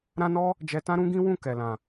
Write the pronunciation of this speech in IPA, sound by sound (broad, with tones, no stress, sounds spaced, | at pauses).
ɾ ã˦ n ɔ˦ | d͡ʒ ɛ˧ t ã˦ ɾ ũ˦ ɡ ĩ˦ w ũ˦˨ k ɛ˨ l ã˨